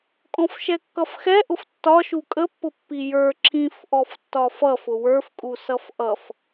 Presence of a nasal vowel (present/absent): present